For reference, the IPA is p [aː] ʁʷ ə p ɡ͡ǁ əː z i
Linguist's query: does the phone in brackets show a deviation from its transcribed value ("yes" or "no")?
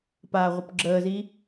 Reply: no